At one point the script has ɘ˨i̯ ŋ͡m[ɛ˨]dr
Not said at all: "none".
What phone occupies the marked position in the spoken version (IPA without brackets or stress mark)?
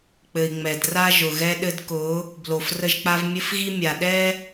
ɛ˨